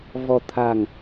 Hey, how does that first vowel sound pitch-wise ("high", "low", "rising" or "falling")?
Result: low